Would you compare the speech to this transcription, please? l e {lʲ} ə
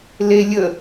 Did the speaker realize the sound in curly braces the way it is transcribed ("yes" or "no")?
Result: yes